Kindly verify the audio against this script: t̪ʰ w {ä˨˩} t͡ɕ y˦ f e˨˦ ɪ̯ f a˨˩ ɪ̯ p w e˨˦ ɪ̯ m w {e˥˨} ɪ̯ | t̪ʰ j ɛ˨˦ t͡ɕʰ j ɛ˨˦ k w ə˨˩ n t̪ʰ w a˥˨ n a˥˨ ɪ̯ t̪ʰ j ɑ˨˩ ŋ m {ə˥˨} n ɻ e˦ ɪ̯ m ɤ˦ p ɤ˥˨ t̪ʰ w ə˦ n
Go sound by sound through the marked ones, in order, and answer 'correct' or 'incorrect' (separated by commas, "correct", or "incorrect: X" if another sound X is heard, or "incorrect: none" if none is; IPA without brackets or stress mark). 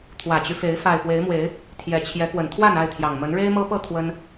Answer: correct, incorrect: e˨˦, incorrect: ə˨˦